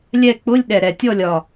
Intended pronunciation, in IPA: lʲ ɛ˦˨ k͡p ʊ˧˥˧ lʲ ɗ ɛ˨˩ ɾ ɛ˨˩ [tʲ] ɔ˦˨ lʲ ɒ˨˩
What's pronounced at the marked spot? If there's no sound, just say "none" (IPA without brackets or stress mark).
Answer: tʲ